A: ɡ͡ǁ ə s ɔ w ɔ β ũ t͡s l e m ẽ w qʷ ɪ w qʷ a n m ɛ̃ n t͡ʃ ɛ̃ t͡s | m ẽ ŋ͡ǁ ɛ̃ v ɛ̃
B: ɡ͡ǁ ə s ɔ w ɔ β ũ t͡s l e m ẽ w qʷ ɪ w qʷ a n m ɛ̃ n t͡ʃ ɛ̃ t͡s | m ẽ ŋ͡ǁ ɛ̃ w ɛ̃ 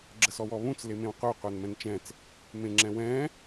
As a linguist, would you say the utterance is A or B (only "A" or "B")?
B